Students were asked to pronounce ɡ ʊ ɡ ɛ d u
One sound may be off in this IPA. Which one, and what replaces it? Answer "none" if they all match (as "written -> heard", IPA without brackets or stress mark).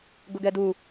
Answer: none